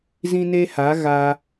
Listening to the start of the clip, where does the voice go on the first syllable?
high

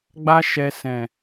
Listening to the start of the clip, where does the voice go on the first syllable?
high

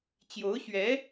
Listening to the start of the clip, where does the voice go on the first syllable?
rising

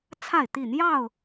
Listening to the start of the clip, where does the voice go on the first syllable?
falling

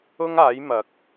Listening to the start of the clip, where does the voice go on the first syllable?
high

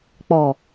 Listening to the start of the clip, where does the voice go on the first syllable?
low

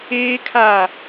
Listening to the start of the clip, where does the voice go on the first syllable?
high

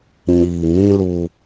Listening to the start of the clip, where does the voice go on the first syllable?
low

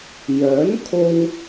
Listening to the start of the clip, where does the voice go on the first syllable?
rising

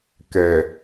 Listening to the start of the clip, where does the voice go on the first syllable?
low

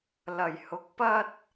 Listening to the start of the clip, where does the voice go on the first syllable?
low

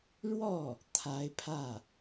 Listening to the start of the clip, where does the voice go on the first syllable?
falling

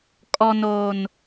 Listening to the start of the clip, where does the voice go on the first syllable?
low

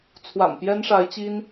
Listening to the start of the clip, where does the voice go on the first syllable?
low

